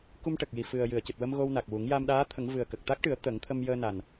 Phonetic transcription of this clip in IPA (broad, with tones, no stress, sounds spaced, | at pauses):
k u˧ m ʈ ə˨˩ k̚ j i˨˩ f ɨ˨˩ ə̯ j ɨ˨˩˨ ə̯ c ɨ˨˩ t̚ w ə˧ m ɣ o˧ w n a˨˩ k̚ w u˨˩˦ ŋ j a˧ m ɗ aː˧˥ t̪ʰ ə˨˩˦ ŋ v ɨ˨˩ ə̯ k ə˨˩ k̚ t̪ a˦˥ k̚ ʈ ɨ˨˩˦ ə̯ t̪ ə˨˩˦ ŋ t̪ʰ ə˧ m j əː˧ n a˨˩ n